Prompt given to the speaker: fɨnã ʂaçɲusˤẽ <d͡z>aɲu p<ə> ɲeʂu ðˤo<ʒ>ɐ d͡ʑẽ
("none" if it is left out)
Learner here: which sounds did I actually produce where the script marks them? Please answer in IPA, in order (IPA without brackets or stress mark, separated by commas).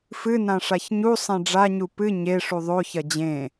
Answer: ɖ͡ʐ, ɨ, ç